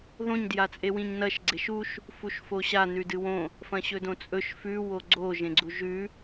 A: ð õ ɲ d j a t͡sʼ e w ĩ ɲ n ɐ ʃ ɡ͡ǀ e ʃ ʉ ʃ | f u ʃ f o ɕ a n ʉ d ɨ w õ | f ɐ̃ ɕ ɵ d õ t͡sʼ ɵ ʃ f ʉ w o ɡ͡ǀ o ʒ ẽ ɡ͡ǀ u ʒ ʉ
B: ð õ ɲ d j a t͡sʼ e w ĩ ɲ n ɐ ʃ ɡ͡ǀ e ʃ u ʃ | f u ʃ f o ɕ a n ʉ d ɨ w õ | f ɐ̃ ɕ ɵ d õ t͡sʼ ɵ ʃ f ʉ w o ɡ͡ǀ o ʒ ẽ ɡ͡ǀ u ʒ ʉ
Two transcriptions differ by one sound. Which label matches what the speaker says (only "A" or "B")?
B